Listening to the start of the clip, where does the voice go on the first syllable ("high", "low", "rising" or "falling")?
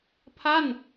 falling